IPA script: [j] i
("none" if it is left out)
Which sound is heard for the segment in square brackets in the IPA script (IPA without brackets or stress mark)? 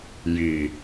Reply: j